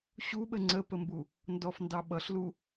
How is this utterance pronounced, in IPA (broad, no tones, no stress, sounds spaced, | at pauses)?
ɕ u ɓ ə ŋ͡ǀ ə p ə m b u | n d ɔ f n d ɑ ɓ ʌ ɬ l u